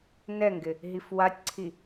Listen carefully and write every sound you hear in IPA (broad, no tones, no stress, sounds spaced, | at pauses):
n ɛ ŋ ɡ ɪ | ɦ i f w a tʲ ǀʰ i